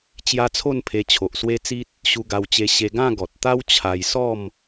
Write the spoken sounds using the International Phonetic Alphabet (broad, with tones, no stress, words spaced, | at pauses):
t͡ɕja˦t͡sʰo˥˧npʰe˧ t͡ɕʰo˨ʔswe˦t͡si˦t̚ | ɕu˧ɡa˧wt͡ɕe˧ ɕe˧ɡã˥˧ ɡɔ˨t̚t̪a˦w t͡ɕʰa˧j sɔ˥˧m